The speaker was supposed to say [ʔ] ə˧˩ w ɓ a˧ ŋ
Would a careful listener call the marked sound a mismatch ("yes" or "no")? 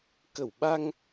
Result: yes